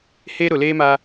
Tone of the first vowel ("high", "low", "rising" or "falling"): high